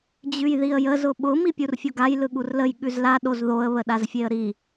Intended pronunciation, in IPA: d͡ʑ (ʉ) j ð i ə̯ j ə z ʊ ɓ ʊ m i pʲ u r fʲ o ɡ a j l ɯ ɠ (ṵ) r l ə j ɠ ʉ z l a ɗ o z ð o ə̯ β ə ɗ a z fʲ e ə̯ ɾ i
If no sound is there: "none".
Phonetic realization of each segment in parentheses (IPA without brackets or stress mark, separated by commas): ʉ, u